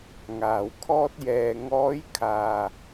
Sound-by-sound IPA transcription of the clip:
ŋ aː˨ w kʰ ɔː˥ t̚ j ɛː˧ ŋ ɔː˨˧ j kʰ aː˨

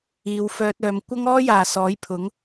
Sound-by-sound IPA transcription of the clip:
iː˨˧ w f œː˧ t̚ œː˨˧ m kʷ ɐ˥ ŋ ɔː˥ j aː˨ s ɔː˨˥ j pʰ ʊ˨˥ ŋ

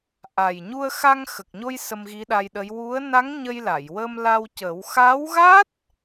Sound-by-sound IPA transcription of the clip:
ʔ a˨˩ j ɲ u˧ ə̯ x a˧ ŋ x ə˨˩ k̚ ɲ o˧ j s ə˧ m ɣ i˧˥ ɗ a˧ j ɗ ə˧˥ j w u˧˥ ə̯ n a˧˥ ŋ ɲ ə˧ j l a˨˩˨ j w ə˧ m l a˧ w c ə˨˩˦ w x a˧˥ w ɣ a˦˥ t̚

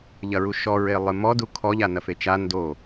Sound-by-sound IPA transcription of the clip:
ʎ ɐ ɹ u ʃ ɔ ɹ e lˠ ɨ m ɔ d u kʰ ɔ ʎ a n ɐ f e t͡ʃ a n d o

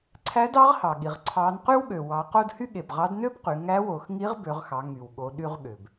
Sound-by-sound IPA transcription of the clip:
ǀʰ æ˧˥ d ɑ˧˥ ʁ h ɑ˩ ɠ i˩ ʁ ǀʰ ɑ˩˧ n q y˥ w ɠ ø˩ w ɑ˩˧ q o˧ d h y˥ ɠ e˩ b ʁ ɑ˧˥ d n ø˥ b q y˩˧ ŋ æ˧˥ w o˩˧ x ŋ i˧˥ ʁ b ø˩˧ ʁ x ɑ˩˧ ŋ y˩ w ɠ o˩˧ ɗ y˧ ʁ ɠ ø˩ b

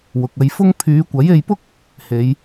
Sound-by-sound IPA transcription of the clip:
w ʊ˨ k̚ ɐ˧ j f ʊ˥ ŋ pʰ yː˨˧ kʷ ɐ˨˥ j e˧ j p ʊ˥ k̚ | h e˨˧ j

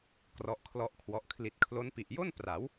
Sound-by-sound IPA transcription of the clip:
k r ɔ˦˥ ʔ kʰ l ɔ˥˩ ʔ kʰ w ɔ˦˥ ʔ kʰ l i˨˩ t̚ kʰ l o˦˥ n p i˨˩ ʔ j o˥˩ n p r a˩˦ w

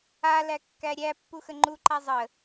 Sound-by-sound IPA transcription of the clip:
a l æ kː æ ɾʲ æ pː u x ə ŋ͡ǃ u ǃ a zˤ ə

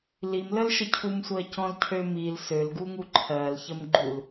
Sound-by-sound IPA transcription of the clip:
l i m l ə l ʃ ə cʰ u m sʷ ɜ c ɔ̃ l cʰ ø m i l s ø l ɡ u ŋ u ǃʰ ɜ l ç ə m ɡ͡ǃ u l

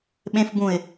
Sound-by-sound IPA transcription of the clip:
ɓ ẽ f b ũ ɪ̯

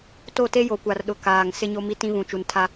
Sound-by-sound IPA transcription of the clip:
t o˦˨ t e˦ j o˨ kʷ a˨ r ɗ ʊ˨ k aː˨ ŋ s ɪ˦ ɲ o˦ m i˦ t ĩ˦ β ũ˨ t͡ʃ u˨ n tʰ a˦

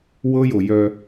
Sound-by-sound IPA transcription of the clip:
w ɤ˦ j o˨ j œ˦

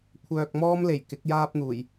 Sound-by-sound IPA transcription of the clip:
kʷʰ œː˨ k̚ m ɔː˧ m l e˨˩ j k ɪ˨˥ k̚ j aː˧ p̚ n̪ uː˨˩ j

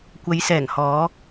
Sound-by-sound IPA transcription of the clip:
kʷ ɐ˨˧ j s ɛː˨˩ ŋ h ɔː˨˧

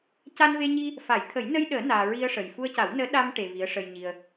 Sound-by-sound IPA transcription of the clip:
c a˧ n v e˧ ɲ i˧ | f a˨˩˦ j t̪ʰ ə˨˩˦ j n ə˧ j ɗ əː˨˩˦ n aː˧ ɹ i˧ ə̯ ʂ ə˨˩ j f u˧ ə̯ c a˨˩˦ w n əː˧˥ ɗ a˧ m ʈ e˧ v i˧˥ ə̯ ʂ ə˧ j ɲ i˧ ə̯

